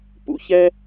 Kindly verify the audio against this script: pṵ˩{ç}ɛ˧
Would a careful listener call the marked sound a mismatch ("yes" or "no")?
no